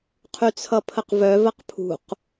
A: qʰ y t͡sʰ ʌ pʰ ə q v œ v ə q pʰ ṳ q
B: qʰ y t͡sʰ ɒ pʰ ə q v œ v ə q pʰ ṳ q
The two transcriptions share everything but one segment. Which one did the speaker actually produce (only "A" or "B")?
A